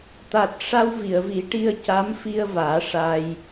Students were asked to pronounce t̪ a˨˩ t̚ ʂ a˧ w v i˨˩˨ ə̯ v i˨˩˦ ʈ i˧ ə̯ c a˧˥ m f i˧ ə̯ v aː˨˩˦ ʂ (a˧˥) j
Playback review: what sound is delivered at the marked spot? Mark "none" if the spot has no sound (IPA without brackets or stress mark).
a˧